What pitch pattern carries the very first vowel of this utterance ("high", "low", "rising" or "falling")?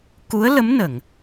rising